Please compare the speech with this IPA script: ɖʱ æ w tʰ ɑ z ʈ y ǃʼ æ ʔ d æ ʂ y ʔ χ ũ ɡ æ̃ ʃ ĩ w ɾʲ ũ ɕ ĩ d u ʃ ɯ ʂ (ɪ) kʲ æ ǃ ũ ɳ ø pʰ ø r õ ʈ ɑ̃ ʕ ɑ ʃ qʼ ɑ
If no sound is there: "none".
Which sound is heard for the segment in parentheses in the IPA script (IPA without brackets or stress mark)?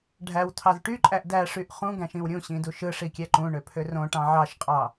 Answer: i